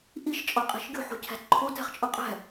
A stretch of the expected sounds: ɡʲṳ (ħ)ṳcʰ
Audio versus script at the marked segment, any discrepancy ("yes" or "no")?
no